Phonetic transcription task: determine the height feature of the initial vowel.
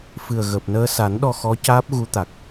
high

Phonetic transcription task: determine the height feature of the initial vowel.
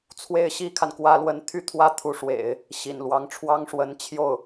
mid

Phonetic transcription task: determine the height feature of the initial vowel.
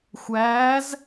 low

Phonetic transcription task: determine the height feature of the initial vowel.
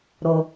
mid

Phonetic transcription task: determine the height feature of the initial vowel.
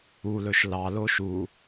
high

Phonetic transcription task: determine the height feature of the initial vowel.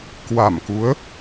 low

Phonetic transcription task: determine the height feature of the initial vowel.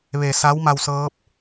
mid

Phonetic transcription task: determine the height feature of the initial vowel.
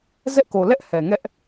mid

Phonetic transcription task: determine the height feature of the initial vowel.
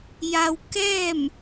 low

